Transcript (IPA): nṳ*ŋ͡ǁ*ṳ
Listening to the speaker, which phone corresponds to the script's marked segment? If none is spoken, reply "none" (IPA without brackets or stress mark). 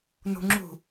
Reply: ŋ͡ǁ